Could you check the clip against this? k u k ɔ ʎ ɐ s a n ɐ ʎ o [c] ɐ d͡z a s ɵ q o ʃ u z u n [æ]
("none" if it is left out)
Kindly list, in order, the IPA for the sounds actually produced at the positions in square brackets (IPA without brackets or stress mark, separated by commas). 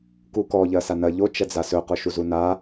t͡ʃ, a